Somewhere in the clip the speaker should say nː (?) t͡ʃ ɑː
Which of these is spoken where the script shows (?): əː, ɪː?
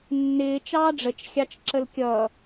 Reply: ɪː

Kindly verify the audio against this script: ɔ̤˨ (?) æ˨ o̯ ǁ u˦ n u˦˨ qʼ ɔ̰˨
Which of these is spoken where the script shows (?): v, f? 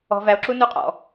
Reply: v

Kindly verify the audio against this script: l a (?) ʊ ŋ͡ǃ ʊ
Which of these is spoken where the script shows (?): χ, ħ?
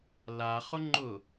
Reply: χ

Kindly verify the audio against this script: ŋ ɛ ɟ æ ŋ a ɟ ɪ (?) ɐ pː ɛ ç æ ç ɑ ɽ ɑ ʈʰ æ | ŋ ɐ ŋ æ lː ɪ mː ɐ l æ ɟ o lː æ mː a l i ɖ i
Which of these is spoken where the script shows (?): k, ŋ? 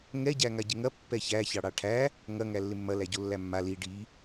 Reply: ŋ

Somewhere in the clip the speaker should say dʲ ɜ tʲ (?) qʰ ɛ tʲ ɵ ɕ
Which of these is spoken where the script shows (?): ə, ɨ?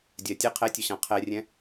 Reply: ə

